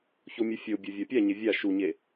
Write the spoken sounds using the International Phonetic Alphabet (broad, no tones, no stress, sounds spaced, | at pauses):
ç o mʲ ɨ fʲ o bʲ o vʲ a pʲ a ɲ e vʲ a ʃ u ɲ e